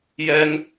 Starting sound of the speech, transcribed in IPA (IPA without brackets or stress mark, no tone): j